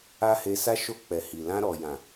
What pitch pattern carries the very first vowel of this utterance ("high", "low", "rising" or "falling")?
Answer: high